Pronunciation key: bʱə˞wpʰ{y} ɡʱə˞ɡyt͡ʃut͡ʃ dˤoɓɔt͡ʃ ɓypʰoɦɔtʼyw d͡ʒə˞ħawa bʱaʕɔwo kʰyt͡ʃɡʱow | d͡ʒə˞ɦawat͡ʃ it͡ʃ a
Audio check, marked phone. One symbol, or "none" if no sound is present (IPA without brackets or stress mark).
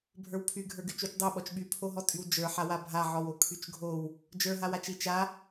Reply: y